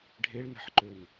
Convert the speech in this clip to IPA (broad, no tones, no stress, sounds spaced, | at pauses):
ɖʱ e ɭ n ɛ̤ ħ ǃ ø n